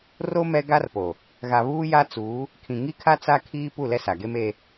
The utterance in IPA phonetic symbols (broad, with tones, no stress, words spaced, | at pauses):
ro˦ mɛ˦ ɡa˦rpo˨ | ɣa˨βuː˦ja˦t͡suː˨˦ | kʰĩ˨ŋi˦kʰa˦ t͡sa˦kʰiː˦ pu˦˨lɛ˦sa˨ɡe˦m e˦